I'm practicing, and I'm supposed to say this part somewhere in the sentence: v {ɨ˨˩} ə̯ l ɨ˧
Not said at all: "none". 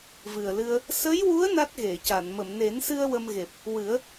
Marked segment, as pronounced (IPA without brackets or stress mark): ɨ˨˩